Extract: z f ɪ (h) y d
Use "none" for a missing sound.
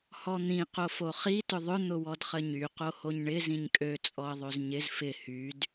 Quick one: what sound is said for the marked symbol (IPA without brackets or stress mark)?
h